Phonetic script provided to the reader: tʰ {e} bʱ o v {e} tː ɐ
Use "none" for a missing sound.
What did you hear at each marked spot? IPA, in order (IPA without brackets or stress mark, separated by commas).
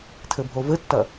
ɘ, ɘ